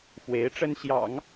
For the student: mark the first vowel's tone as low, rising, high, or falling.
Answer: rising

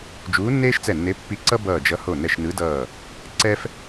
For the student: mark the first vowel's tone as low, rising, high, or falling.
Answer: rising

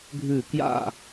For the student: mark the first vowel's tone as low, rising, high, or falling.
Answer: falling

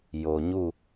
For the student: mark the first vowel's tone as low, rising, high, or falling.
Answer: low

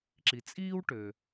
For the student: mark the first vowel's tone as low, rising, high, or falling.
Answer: low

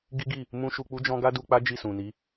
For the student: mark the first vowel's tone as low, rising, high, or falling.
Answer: high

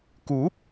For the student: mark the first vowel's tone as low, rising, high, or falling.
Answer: rising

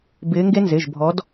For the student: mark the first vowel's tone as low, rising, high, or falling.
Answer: rising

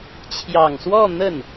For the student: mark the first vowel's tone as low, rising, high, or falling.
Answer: low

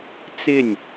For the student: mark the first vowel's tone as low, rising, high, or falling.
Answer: falling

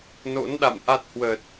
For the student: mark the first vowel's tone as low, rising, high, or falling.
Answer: rising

